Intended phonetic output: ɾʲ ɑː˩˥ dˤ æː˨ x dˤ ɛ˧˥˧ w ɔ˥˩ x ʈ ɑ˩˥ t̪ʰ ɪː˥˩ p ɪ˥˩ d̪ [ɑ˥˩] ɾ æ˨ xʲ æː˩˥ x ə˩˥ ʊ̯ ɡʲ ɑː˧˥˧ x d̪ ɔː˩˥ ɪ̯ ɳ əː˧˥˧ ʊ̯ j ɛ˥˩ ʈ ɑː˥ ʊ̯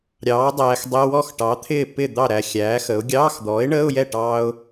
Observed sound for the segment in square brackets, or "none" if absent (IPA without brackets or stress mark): ɑ˥˩